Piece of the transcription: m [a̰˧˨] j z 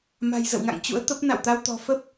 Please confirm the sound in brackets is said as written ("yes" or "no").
no